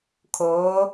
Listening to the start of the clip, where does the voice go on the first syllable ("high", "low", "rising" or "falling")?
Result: rising